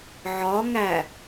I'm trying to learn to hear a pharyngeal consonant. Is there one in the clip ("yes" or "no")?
yes